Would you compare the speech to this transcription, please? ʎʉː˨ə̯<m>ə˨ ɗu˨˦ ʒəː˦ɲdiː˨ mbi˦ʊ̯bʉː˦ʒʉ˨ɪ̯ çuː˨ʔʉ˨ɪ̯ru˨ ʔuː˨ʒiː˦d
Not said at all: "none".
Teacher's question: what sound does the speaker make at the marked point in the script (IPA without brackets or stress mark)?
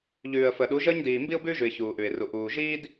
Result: f